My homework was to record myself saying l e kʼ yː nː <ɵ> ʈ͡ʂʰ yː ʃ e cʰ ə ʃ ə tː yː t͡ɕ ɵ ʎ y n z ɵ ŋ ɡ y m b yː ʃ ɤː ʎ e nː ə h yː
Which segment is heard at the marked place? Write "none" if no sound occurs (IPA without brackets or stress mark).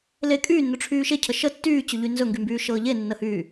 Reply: ɵ